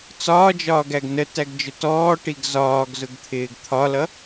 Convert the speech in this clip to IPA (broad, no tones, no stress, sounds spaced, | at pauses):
t͡s ɒː d͡ʒ ɒː ɡ æ ɡ n ə t æ ɡ d͡ʒ ʊ t ɔː ʈ i ɡ z ɒː ɡ z ʊ ɡ t̪ʰ ɪː ɡ t̪ʰ ɒ l ʌ